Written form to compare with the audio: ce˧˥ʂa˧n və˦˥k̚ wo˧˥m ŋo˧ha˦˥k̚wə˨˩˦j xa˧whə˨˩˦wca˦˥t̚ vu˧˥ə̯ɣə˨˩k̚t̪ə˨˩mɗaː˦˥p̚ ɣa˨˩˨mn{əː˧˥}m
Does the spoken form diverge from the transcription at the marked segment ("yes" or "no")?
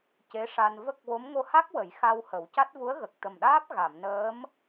no